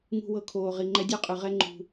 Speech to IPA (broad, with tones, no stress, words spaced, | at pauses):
ŋṳ˧wɤ˧kʰoː˨ ʁi˨ŋ͡ǃɛ˦ dʲɔ˦qʼɯ˨ʁɛ˦ ŋ͡ǃṳ˧